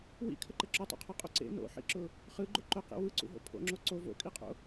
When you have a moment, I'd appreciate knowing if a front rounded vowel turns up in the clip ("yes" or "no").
no